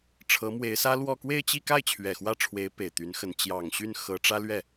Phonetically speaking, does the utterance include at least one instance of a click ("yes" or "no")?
no